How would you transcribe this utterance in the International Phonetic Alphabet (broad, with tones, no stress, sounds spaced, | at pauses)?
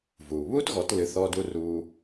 v uː˩ β uː˥ t ɣ ɔ˩˥ t l ɨ˩˥ θ ɔː˧ d u˧ r uː˧